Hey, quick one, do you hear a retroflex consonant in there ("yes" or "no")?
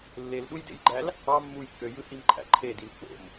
no